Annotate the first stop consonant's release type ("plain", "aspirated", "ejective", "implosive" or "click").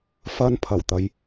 aspirated